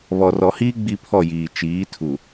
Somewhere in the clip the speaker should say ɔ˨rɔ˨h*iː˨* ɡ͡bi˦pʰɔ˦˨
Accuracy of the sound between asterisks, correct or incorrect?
incorrect